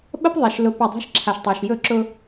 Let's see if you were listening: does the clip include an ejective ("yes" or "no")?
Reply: no